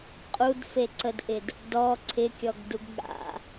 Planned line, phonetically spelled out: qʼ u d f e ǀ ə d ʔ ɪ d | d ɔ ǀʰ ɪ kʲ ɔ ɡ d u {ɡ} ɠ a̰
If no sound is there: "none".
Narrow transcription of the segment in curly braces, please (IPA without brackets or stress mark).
ɡ